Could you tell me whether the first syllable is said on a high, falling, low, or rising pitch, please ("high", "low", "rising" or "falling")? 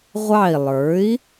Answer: falling